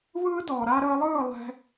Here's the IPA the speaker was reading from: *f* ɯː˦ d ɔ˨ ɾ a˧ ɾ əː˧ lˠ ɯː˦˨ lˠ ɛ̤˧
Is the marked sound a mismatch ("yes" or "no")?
yes